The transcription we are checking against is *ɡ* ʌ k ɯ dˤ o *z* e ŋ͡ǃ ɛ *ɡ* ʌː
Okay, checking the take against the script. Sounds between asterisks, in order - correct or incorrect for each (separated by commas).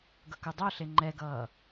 correct, incorrect, correct